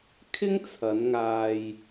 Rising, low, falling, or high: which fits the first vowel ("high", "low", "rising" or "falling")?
high